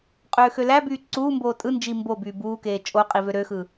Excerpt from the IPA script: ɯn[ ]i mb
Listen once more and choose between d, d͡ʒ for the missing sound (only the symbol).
d͡ʒ